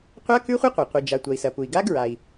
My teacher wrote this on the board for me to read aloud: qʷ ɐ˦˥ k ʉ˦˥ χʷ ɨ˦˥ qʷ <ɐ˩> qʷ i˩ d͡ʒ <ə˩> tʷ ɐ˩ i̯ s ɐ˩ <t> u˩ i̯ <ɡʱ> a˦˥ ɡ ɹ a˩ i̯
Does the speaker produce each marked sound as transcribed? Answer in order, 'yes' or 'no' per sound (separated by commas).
yes, no, no, no